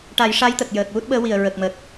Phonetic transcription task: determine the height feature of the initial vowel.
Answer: low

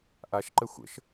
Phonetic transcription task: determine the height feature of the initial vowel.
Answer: low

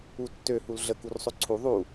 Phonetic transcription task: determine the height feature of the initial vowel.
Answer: high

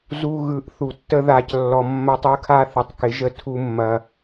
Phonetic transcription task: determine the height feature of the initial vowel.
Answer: high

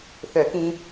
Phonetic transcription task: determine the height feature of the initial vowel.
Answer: mid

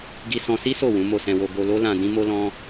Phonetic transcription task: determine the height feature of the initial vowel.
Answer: high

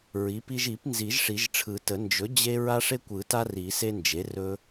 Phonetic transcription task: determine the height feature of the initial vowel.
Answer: high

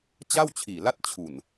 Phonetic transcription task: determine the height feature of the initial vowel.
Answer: low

